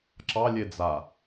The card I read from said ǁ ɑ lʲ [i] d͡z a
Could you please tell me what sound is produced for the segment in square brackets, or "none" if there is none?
e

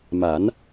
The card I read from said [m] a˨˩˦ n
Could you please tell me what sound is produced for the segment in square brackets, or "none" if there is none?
m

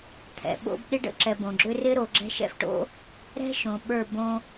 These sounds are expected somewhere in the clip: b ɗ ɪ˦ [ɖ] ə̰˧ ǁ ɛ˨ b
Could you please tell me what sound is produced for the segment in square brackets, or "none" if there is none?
ɖ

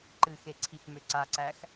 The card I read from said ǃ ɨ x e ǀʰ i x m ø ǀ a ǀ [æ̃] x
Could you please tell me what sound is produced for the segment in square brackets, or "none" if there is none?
æ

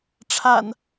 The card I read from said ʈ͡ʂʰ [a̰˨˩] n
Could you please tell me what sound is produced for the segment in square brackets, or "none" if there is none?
a̰˨˩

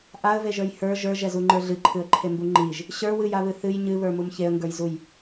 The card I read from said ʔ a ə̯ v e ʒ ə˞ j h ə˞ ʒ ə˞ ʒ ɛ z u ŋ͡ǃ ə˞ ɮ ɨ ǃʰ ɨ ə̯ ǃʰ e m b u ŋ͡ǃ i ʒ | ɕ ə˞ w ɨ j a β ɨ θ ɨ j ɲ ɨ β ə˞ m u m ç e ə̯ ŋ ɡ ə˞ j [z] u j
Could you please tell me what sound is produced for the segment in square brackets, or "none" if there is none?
z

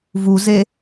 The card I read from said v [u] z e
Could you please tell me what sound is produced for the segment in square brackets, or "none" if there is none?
u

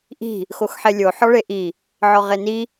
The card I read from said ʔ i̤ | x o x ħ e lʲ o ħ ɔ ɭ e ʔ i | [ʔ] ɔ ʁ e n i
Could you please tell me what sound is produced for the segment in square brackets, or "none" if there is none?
ʕ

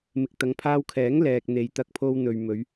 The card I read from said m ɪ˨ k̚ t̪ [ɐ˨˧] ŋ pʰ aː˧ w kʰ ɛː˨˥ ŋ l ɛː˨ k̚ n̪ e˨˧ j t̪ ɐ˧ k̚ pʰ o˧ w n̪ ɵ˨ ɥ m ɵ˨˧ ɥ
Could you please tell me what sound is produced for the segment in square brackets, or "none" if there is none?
ɐ˨˧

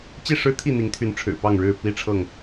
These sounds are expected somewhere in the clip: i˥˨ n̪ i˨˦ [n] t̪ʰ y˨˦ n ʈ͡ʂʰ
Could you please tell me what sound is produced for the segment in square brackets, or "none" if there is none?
ŋ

